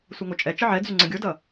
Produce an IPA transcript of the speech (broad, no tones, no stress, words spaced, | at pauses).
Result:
sʷʌŋot͡ʃʼɛ t͡ʃʌʕɛd͡zy ŋ͡ǀə̃ɡʲodʌ